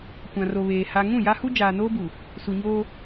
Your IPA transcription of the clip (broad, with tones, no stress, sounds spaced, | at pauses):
kʷ ã˨ r o˨ β eː˨ h a˨ ŋ ũ˦˨ j a˦ h u˦ d͡ʒ aː˨ n oː˦ b u˨ | s u˨ ɲ oː˦